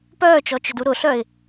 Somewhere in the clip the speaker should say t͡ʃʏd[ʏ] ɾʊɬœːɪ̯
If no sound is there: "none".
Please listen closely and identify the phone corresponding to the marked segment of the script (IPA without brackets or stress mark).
u